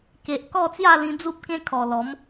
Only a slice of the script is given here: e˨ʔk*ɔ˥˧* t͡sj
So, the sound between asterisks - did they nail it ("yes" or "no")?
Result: yes